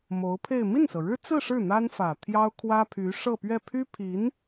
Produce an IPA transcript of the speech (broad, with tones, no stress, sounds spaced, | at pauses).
m o˧˥ ʊ̯ pʰ e˥˧ ɪ̯ m i˥˩ n s ɤ˩ ɻ ɻ̩˥ t͡s ɹ̩˥˧ ʂ ɻ̩˥˩ n̪ a˥ n f ä˨˩ t̪ʰ j ɑ˥ ʊ̯ kʰ w ä˥ pʰ y˧˥ ʂ ɤ˥˧ p ɥ ɛ˥˩ pʰ y˥ pʰ i˧˥ n